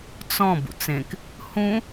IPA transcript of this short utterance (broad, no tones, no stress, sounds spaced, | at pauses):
t͡s ɔ̃ b ṵ t͡s ẽ k | h ũ